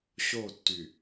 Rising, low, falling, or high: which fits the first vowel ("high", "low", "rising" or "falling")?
falling